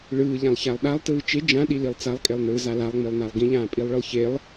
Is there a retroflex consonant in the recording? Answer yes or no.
yes